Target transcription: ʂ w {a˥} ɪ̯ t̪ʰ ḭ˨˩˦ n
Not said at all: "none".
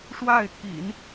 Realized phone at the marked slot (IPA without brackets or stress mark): a˥˩